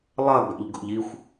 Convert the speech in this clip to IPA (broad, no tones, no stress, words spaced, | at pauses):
lˠɐ ɡa̰ʎɡo̰ʎixʷ